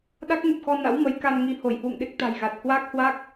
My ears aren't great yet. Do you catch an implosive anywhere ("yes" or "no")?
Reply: yes